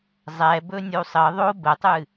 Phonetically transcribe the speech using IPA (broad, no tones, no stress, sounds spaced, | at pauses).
zˤ ɛ b ɵ nʲ u sˤ ə ðˤ o b ə tˤ ɨ